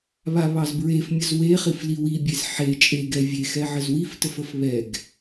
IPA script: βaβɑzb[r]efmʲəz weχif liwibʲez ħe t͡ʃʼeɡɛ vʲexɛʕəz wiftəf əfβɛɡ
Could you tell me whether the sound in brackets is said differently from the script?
yes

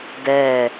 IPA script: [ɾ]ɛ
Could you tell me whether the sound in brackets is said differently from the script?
yes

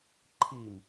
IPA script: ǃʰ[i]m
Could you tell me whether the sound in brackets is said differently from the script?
no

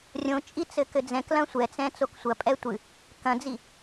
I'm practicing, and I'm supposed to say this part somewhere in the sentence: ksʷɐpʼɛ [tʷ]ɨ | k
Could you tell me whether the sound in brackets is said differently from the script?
no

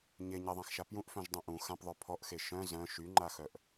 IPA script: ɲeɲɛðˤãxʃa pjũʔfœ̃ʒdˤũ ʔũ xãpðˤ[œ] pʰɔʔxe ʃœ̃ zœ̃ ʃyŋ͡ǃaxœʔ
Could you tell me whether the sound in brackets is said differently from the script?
no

